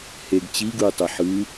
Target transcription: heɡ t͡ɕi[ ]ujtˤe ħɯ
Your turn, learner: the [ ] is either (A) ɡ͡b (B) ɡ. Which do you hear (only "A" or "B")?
B